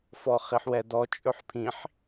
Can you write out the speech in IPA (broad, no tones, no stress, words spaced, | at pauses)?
fɔχiħwɛdɔ t͡ʃʼɵħpʰĩħ